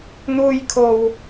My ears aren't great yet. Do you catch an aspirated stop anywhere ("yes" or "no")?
yes